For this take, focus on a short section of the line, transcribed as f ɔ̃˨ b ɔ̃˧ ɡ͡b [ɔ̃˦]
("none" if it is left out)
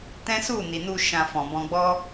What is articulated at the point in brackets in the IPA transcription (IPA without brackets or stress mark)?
ɔ˦